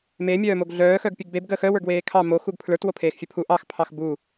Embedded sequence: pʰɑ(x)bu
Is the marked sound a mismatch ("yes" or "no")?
no